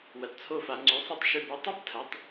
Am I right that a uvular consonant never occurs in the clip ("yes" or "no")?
yes